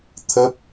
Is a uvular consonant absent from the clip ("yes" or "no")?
yes